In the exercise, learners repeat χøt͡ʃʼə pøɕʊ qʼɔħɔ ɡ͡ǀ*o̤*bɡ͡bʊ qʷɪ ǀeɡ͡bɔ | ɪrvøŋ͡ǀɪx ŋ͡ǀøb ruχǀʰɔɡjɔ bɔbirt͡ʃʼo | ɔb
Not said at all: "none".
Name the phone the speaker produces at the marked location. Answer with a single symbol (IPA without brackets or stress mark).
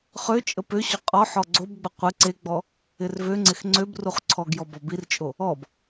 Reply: o